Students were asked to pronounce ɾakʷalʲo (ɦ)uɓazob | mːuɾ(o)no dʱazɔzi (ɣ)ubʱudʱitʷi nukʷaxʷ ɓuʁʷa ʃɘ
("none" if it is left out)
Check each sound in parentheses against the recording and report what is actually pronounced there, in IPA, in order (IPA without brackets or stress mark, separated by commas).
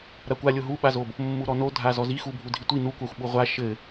ɦ, ɔ, x